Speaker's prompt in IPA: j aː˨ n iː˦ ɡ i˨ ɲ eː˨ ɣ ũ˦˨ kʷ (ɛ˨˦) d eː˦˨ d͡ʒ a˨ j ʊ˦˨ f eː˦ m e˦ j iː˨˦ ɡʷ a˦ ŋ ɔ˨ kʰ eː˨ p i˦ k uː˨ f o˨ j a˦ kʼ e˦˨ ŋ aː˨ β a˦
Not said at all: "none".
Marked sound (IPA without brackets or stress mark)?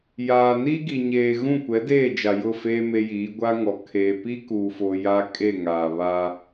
ɛ˨˦